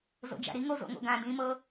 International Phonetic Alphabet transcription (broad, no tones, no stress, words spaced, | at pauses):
zo̰d͡ʒa̰ɾiŋo zo̰ŋo̰ɡã dĩmɤ